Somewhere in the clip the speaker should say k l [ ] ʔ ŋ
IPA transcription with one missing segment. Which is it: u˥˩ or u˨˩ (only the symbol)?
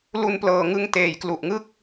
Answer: u˨˩